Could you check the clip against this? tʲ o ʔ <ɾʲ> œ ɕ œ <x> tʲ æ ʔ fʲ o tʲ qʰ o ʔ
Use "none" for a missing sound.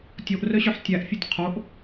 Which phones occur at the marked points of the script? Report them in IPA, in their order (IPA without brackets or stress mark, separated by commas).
r, ħ